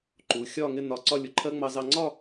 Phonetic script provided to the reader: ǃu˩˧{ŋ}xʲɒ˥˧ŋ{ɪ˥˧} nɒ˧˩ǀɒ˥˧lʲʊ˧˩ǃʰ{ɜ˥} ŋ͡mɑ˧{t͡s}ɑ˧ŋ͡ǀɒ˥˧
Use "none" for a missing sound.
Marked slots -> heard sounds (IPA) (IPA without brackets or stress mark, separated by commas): none, ɪ˥˧, ɜ˥, z